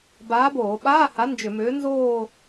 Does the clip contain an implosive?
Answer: yes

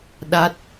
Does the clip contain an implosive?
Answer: yes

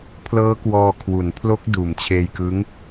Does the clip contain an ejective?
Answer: no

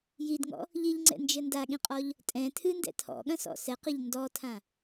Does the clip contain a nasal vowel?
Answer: yes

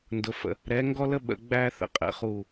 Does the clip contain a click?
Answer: no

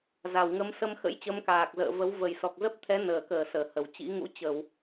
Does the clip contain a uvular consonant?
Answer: no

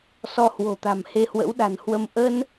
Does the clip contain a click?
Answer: no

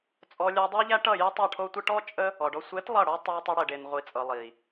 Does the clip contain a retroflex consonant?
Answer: yes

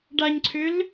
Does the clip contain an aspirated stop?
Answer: yes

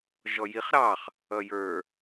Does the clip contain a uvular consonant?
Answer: yes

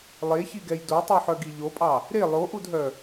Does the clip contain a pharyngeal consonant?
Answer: yes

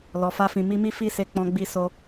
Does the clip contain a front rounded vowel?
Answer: no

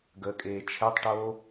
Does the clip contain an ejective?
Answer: yes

